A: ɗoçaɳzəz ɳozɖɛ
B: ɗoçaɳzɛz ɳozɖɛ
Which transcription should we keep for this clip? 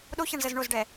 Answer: A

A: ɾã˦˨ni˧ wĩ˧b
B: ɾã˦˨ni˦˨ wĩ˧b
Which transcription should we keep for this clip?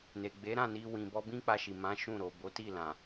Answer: A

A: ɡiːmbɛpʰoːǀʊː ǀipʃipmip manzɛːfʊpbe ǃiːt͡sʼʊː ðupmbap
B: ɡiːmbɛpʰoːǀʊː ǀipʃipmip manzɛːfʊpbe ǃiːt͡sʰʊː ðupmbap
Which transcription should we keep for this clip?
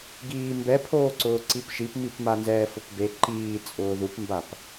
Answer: A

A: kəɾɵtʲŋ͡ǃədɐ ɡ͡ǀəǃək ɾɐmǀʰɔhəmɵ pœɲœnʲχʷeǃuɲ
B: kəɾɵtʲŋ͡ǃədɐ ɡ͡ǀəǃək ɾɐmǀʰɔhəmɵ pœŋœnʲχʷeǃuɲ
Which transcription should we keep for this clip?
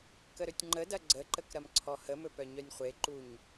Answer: A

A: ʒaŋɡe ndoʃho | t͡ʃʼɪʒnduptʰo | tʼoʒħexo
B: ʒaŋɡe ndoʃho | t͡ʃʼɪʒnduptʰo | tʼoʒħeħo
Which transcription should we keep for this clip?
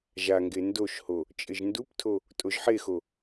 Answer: A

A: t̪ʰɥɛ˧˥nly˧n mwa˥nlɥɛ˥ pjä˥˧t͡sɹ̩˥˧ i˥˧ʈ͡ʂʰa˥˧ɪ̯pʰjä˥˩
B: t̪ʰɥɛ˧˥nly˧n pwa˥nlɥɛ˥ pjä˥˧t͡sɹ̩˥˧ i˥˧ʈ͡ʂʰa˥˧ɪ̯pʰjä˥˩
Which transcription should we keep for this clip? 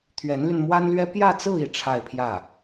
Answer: A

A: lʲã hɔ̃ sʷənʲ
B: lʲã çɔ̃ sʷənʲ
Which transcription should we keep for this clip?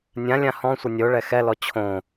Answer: A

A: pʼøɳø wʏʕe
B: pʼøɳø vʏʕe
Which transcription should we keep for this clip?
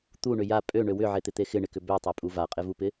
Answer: A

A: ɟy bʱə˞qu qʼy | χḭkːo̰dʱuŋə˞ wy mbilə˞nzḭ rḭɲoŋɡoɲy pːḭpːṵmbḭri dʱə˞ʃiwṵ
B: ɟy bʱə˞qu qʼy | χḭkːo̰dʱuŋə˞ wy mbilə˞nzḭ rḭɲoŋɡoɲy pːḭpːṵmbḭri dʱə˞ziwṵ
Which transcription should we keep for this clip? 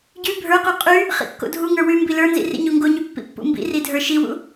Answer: A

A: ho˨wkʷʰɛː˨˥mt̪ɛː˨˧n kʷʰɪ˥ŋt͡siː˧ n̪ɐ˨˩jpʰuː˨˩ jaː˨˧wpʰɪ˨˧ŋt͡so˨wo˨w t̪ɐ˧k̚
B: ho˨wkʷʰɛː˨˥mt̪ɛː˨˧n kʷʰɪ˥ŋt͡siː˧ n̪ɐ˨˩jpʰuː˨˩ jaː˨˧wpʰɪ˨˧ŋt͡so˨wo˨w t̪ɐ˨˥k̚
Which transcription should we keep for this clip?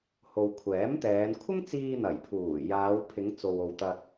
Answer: A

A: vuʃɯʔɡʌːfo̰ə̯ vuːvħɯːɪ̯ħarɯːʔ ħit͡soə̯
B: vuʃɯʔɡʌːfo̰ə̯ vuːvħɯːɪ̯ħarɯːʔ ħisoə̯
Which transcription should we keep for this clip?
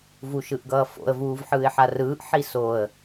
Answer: B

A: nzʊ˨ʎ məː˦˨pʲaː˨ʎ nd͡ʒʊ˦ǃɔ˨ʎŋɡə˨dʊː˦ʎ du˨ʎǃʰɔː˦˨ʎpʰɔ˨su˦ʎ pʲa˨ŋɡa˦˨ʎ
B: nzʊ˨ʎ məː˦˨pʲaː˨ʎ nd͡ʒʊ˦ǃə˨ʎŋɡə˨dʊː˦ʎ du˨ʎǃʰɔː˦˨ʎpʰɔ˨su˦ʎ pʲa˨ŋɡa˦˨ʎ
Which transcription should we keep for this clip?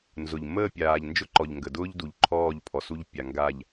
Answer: A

